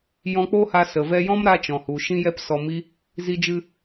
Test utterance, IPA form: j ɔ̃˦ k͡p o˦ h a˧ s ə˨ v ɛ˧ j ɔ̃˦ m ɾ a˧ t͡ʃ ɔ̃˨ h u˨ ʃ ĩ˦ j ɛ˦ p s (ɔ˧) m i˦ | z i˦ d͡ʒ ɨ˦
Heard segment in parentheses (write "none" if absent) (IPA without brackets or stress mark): ɔ˧